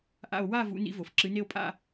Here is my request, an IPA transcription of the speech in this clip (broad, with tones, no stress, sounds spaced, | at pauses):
ʔ a̰˦˨ o̯ w a˦˨ v ṵ˨˥ n ḭ˨˥ v o˩ f ǁ ɨ˩˧ n e˦˨ o̯ pʼ a̰˦˨